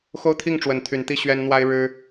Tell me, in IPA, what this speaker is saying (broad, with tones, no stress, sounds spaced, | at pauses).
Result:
x o˦ ʊ̯ t̪ʰ i˥˨ ŋ ʈ͡ʂ w ə˨˦ n t̪ʰ y˨˦ n t̪ i˥˨ ɕ ɥ ɛ˦ n n̪ w a˦ ɪ̯ ɻ ɻ̩˦